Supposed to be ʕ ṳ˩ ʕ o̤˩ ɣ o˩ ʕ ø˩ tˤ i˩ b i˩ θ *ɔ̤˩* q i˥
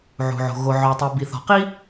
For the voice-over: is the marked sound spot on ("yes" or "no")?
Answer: yes